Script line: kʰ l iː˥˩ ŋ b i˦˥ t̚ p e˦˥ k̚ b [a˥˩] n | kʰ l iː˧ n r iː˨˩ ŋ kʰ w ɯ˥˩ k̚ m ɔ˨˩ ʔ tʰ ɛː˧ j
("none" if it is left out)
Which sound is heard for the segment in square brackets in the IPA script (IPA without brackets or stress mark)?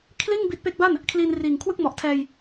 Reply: a˥˩